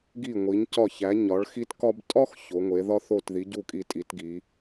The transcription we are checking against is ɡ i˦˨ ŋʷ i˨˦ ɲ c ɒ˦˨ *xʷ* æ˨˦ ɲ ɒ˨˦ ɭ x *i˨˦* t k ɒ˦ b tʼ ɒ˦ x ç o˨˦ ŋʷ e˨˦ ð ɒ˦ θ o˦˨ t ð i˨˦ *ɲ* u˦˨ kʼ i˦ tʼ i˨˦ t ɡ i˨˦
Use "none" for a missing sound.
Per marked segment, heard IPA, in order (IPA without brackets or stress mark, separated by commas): ç, i˦, ɟ